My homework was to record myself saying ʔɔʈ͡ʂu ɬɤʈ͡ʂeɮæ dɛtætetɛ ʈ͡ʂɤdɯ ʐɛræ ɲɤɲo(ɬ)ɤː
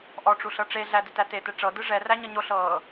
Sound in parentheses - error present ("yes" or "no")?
no